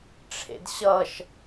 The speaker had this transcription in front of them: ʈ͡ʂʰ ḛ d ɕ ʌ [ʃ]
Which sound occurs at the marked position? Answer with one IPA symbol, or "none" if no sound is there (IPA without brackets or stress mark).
ʃ